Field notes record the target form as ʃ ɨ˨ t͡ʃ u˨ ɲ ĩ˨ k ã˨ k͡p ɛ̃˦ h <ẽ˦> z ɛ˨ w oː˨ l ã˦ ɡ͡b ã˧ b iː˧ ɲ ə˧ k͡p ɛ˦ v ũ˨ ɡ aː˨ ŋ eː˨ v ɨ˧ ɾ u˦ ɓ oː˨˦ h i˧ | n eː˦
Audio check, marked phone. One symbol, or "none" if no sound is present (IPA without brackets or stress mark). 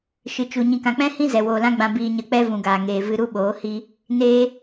ĩ˦